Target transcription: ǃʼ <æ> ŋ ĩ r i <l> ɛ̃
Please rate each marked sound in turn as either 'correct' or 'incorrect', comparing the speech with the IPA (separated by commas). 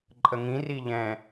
incorrect, incorrect